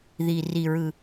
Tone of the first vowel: low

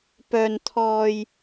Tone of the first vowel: high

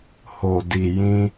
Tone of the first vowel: low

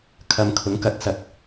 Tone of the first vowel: high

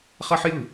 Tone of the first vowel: high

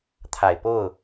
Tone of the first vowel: low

